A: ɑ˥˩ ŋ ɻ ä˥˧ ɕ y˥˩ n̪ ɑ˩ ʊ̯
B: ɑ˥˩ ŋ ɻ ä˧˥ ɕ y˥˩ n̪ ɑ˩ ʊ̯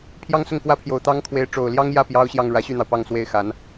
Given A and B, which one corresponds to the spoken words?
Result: B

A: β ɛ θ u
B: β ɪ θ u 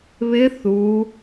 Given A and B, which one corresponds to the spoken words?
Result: B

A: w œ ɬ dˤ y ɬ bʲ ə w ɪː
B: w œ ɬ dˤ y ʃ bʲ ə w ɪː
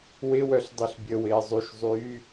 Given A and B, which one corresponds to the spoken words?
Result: A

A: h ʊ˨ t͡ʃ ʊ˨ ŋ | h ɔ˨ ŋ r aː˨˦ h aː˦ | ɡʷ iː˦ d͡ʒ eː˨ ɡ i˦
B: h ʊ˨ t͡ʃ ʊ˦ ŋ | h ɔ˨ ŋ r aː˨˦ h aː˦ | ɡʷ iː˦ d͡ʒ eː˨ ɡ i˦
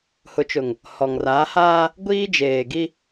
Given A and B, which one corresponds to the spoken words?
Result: A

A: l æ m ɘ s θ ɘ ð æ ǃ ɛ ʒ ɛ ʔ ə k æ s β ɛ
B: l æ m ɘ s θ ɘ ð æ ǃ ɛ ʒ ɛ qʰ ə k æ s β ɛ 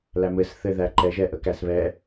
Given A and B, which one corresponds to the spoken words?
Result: A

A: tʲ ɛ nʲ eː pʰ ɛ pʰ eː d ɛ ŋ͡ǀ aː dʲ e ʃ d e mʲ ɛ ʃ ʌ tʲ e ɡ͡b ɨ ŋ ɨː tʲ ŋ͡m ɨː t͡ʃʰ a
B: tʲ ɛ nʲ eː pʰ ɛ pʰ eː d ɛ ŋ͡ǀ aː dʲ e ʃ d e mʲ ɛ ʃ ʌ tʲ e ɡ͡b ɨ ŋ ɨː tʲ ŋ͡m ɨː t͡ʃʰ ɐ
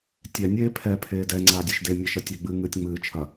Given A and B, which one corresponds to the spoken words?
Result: B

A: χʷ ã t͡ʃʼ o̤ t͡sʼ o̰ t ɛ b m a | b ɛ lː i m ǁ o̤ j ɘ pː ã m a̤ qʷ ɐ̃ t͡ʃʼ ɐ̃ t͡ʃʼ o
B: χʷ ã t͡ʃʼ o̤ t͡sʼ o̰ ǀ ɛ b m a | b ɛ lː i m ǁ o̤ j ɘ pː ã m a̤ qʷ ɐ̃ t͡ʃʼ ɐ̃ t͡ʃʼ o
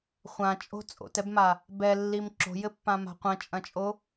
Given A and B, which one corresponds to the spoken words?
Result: A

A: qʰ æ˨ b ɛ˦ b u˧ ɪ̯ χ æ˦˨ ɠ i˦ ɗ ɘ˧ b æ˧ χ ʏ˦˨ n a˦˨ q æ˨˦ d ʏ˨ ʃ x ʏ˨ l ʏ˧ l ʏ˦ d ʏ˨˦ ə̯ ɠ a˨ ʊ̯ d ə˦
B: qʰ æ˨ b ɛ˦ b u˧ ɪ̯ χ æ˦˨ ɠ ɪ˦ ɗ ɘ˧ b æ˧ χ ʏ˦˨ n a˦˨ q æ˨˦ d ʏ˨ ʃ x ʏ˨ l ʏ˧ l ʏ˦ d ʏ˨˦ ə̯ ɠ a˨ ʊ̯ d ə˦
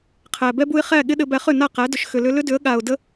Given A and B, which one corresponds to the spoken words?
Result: B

